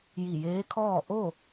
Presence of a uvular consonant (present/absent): absent